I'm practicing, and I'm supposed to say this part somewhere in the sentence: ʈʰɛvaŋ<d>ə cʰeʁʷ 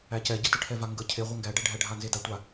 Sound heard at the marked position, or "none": ɡ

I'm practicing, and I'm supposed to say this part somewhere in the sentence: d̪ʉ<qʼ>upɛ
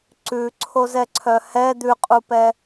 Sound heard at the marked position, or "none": qʼ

